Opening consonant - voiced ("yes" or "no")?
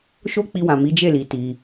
no